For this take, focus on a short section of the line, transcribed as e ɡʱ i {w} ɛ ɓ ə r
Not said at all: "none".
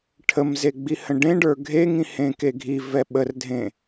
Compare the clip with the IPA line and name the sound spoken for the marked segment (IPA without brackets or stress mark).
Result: v